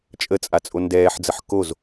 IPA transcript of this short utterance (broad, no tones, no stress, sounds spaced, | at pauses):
t͡ʃʼ ə t͡sʼ a t͡sʼ o n d ɛː ħ d͡z ə ħ k o z